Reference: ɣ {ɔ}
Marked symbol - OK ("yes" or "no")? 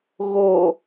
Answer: no